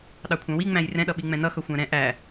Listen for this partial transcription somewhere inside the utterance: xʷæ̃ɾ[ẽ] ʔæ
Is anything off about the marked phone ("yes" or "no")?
yes